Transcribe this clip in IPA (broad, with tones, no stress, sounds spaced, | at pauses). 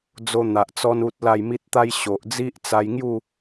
d͡z o˧ n̪ a˨ ʔ t͡s ɔ˧ n u˦ t̚ l a˥˧ j m i˦ t̚ t̪ a˦ j ɕ o˨ ʔ d͡z i˦ ʔ t͡s a˧ j ŋ j u˥˧